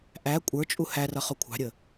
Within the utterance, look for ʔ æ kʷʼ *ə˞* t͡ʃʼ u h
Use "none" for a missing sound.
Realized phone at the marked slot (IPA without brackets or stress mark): ə˞